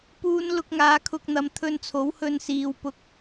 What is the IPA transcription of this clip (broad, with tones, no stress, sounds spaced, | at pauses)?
p uː˧ n l ʊ˧ k̚ ŋ aː˨˧ kʰ ʊ˧ k̚ n̪ ɐ˨˧ m t̪ʰ ɵ˧ n t͡sʰ o˨˥ w h ɵ˧ n s iː˨ w p ʊ˧ k̚